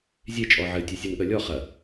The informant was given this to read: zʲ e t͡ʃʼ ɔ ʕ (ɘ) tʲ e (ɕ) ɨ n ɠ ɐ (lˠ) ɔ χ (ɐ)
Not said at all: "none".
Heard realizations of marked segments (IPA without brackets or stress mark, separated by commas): ɘ, sʲ, lʲ, ɐ